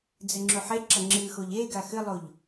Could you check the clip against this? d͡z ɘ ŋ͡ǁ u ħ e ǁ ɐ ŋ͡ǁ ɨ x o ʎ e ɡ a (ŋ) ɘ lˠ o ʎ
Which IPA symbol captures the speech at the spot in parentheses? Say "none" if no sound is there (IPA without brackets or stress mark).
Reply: x